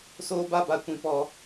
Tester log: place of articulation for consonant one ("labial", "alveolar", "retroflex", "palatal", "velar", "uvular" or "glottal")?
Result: alveolar